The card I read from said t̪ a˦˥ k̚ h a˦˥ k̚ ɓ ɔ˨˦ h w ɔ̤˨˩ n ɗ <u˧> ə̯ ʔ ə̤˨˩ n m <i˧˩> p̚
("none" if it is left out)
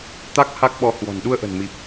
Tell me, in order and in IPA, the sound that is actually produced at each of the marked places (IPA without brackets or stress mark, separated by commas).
u˧, i˨˩